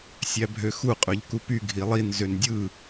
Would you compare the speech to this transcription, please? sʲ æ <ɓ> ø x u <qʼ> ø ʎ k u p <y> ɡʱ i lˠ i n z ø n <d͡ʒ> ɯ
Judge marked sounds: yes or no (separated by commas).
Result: no, yes, yes, no